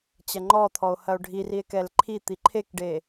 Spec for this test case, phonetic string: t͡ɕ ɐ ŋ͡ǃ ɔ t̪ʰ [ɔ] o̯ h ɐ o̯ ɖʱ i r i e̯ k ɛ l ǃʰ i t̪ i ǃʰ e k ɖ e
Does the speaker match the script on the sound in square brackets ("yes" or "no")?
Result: yes